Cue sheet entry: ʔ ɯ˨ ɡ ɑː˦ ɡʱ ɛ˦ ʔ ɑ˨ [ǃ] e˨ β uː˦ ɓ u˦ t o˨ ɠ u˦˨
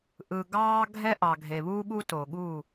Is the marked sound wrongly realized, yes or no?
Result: yes